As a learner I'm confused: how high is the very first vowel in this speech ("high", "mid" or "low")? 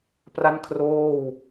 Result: low